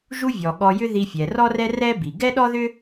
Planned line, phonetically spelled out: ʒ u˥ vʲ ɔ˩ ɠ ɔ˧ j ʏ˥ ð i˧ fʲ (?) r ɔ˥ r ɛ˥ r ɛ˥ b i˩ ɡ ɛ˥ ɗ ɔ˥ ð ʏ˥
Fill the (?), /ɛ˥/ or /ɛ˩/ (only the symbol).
ɛ˩